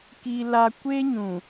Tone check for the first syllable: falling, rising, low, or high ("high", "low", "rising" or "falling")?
high